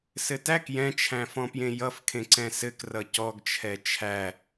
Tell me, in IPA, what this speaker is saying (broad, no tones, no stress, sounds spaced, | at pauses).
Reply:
s ɘ t æ k j ɛ̃ t͡ʃʰ æ̃ f ɔ̃ p j ẽ j ʌ f kʰ ẽ ǀ ɛ̃ s ɘ k r ʌ c ɔ ɡ t͡ʃʰ ɛ t͡ʃʰ æ